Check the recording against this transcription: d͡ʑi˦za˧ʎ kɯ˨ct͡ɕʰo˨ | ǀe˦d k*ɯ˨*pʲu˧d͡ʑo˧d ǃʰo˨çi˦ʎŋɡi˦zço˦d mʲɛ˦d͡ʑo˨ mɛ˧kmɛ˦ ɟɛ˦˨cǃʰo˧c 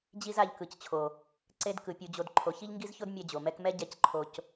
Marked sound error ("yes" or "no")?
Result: no